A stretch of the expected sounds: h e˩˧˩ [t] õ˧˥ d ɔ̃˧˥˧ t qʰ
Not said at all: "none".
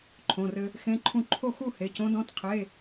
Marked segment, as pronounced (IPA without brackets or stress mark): c